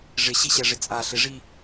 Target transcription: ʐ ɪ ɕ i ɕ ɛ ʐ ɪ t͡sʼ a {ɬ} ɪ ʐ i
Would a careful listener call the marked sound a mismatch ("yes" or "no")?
no